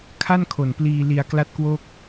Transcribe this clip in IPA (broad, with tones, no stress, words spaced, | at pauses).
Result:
kʰa˥˩nkʰo˨˩npliː˧ li˧a̯kla˥˩t̚kwo˥˩k̚